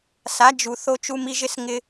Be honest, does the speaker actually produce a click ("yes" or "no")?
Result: no